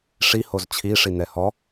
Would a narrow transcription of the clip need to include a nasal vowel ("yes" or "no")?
no